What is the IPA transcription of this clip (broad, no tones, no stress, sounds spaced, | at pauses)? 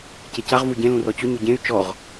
c e c a ʁ v u ɟ ẽ l ũ r ɔ t͡ɕ ʊ ɲ ʊ ɟ ẽ y̯ t͡ʃ ɔ ʁ